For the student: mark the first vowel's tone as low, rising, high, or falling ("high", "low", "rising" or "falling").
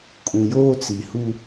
low